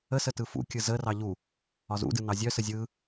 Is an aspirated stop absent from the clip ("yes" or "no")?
yes